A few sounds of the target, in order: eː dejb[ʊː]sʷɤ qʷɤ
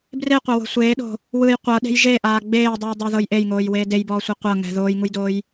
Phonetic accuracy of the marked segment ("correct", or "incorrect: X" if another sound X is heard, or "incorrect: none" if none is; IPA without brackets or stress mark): incorrect: ɔː